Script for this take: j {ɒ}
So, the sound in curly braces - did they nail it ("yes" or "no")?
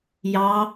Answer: no